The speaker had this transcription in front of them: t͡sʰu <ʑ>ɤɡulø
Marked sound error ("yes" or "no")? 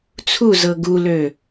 yes